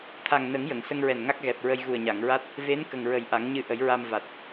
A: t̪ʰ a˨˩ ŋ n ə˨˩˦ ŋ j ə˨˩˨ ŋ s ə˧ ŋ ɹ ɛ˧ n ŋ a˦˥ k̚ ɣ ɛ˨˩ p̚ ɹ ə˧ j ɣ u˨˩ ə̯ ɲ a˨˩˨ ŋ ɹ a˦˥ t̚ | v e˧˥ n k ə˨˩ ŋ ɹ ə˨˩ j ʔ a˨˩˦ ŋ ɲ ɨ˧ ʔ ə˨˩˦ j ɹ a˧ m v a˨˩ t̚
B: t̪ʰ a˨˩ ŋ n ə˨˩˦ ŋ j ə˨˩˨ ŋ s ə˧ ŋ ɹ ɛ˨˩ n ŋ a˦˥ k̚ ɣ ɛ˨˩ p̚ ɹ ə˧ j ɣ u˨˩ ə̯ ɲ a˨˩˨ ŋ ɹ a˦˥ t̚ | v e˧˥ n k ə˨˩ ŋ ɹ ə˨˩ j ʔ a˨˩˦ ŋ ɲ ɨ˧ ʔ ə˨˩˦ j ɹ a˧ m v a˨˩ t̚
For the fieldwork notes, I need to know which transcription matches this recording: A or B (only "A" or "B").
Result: B